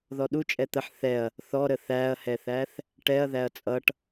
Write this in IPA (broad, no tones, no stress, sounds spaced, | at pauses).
ð ɔ ɗ u t͡ʃʼ ɛ t̪ ə ħ θ ɛ ɐ̯ | θ ɔ ɾ ə θ æ ɐ̯ h ɛ θ æ θ | ʈ ɛ ɐ̯ ð æ ɐ̯ t͡sʼ ʌ ʈ